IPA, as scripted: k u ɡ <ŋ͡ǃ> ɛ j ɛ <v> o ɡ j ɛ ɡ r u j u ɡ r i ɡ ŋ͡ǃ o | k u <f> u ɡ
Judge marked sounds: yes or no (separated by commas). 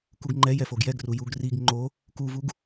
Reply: yes, no, no